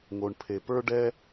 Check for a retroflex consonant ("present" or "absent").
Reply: present